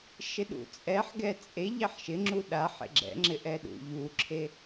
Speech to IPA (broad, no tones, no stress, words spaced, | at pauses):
ʃɪɗṵt͡sʼɛħ ɡɛt͡sʼe ʎɛħʃɪŋ͡ǁu ɗa ħḛɡ͡ǁɛ̰ŋ͡ǁɪ ʔɛɗṵ ʎuǁʰe